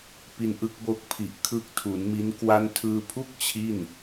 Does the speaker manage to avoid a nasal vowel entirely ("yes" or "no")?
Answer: yes